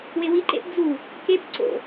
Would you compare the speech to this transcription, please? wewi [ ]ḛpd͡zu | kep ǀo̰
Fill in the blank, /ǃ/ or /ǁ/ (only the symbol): ǃ